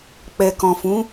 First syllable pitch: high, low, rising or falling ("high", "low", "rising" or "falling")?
low